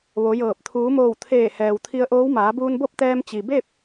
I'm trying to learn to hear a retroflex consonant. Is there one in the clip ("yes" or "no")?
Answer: no